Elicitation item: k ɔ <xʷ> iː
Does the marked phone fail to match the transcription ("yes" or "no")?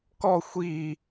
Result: no